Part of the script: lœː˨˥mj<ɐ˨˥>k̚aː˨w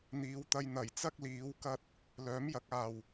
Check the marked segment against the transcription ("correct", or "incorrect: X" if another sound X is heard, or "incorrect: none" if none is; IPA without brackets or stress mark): correct